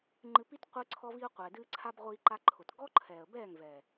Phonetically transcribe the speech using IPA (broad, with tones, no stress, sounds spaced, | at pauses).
ŋ͡ǃ ɨ˧ p i˦ t qʷ ɨ˦ ǀʰ ɔ˦ v i˦ ʊ̯ qʷ ɛː˨ d ɨː˦ ǀʰ a˦ b ʁʷ iː˧ ǃ a˧ ǃʰ ʊ˨ t ɡ ɔ˦ ǃʰ ɛː˨ ə̯ b ɛː˦˨ ŋ v ɛ˨